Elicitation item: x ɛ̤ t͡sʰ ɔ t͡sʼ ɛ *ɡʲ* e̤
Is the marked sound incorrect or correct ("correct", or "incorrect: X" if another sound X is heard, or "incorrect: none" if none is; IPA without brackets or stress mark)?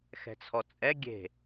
correct